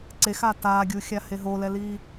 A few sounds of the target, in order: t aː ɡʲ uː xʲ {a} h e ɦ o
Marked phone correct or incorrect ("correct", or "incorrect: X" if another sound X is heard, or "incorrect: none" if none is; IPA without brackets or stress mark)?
correct